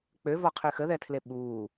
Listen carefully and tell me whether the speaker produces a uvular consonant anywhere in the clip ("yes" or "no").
yes